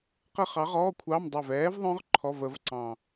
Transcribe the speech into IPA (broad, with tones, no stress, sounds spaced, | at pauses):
q ə˦˥ χ ɑ˨˥ ʁ ɔː˧˥˧ kʷʰ ɑ˧˥˧ m dˤ ɛ˧˩ v ɛː˨˥ v ðˤ œ̃˦˥ ʁ ǃʰ ɔ˧˥˧ v ə˨˥ v ǀ ɑ̃˧˩